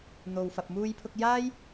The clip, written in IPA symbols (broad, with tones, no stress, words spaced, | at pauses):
n̪o˨wfɐ˨p̚ muː˧jpʰʊ˧k̚jaː˥j